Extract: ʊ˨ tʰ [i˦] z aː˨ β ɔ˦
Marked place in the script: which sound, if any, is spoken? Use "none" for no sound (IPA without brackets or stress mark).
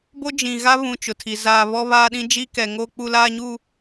i˨